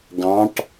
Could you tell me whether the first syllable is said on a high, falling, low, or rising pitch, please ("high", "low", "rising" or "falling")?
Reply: rising